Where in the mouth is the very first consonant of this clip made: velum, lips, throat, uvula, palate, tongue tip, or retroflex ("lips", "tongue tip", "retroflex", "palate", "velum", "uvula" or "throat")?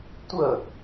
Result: tongue tip